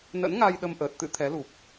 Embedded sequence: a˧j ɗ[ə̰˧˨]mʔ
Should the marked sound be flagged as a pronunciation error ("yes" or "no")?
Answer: yes